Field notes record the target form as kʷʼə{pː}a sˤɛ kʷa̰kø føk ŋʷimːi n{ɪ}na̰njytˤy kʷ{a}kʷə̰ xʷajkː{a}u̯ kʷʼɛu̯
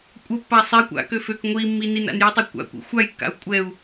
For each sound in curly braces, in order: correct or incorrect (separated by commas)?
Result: correct, incorrect, incorrect, incorrect